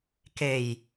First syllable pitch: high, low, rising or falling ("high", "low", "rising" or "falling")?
low